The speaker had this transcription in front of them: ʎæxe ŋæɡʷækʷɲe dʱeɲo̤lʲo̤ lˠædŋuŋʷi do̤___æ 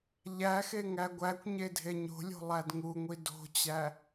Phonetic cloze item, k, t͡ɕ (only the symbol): t͡ɕ